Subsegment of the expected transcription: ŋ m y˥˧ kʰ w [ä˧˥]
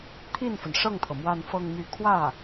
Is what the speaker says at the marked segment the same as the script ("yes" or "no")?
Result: no